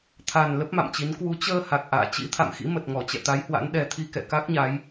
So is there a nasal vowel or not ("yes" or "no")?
no